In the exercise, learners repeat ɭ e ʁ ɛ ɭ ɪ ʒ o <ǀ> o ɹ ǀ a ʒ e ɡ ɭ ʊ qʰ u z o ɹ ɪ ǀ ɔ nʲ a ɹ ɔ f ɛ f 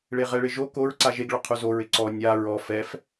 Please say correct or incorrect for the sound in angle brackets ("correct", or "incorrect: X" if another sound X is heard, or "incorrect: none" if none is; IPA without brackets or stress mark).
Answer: incorrect: k